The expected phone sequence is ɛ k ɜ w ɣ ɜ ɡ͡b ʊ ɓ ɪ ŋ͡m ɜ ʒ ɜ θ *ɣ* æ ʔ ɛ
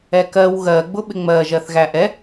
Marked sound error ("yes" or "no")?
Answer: no